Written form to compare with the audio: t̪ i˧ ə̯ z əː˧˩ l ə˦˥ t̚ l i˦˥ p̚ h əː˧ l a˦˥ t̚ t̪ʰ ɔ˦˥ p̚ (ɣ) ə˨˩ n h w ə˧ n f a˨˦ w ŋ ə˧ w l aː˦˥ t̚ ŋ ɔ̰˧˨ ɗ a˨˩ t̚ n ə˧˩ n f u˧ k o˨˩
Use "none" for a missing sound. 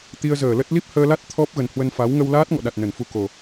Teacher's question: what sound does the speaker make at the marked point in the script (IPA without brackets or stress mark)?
ɣ